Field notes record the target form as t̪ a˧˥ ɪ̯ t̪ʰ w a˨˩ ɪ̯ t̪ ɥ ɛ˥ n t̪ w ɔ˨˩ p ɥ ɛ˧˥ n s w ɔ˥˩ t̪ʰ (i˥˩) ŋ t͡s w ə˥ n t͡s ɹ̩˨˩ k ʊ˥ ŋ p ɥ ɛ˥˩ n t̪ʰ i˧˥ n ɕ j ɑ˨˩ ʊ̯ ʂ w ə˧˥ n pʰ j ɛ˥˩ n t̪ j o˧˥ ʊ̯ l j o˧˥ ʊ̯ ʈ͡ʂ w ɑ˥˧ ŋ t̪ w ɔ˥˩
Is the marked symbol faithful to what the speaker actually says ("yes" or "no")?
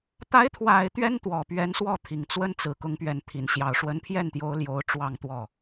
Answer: no